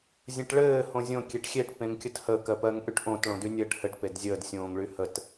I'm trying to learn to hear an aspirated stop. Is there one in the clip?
no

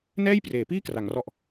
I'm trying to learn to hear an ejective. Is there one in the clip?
no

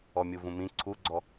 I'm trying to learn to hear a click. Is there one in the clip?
yes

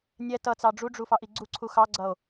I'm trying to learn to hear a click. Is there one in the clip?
yes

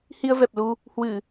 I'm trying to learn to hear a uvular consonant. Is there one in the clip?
no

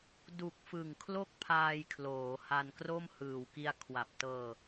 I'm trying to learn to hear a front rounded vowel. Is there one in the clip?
no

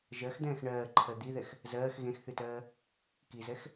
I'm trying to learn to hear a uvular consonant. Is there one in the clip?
no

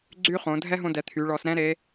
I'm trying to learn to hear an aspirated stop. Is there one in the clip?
yes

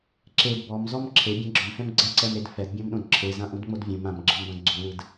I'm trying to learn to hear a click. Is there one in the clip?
yes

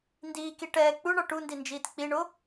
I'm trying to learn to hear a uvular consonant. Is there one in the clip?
no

